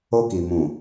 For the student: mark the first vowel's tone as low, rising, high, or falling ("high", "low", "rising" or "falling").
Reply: high